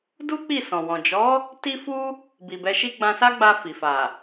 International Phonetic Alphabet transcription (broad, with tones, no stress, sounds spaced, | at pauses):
d u˦ k͡p i˦˨ s ɔ̃˨ w ɔ̃˨ d͡ʒ ɔ˨˦ | t i˦ f u˦ | b i˨ b ɛ˧ ʃ i˦ ɡ͡b ã˧ s a˦ ɡ͡b a˧ f i˨ f a˨